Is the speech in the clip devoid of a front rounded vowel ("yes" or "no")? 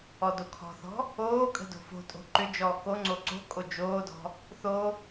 no